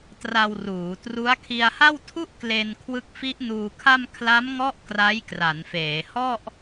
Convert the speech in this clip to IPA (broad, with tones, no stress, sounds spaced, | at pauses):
t r a˧ w r uː˩˦ t r u˦˥ a̯ kʰ i˧ a̯ h a˥˩ w tʰ u˥˩ ʔ k l e˧ n kʰ w ɯ˦˥ k̚ f i˦˥ ʔ n uː˧ kʰ a˥˩ m kʰ l a˦˥ m ŋ ɔ˦˥ ʔ k r a˦˥ j k r a˩˦ n f eː˩˦ h ɔ˥˩ ʔ